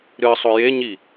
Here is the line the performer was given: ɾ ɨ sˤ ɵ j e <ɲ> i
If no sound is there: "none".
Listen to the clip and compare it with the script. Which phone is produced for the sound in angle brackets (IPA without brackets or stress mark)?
ɲ